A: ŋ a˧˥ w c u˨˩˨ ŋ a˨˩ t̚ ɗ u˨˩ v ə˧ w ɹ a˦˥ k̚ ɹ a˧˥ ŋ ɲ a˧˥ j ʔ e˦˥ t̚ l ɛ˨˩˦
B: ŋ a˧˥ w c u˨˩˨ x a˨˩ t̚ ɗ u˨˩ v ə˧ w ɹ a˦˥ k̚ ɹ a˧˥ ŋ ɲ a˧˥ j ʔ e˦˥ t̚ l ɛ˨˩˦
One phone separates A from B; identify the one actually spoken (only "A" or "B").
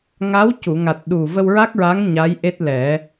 A